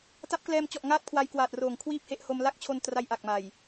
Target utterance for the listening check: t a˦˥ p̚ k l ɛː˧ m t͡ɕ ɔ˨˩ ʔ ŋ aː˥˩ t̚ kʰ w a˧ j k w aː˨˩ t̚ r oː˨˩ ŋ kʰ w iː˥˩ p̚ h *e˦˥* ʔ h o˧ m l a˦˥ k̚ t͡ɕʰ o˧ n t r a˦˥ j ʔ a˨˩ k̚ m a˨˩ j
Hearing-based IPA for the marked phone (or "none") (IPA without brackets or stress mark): e˦˥